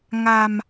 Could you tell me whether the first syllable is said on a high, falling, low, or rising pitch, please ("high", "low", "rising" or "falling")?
low